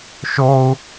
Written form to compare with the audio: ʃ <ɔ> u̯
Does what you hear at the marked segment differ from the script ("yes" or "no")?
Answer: yes